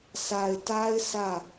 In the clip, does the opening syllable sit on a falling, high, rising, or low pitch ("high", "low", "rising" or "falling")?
low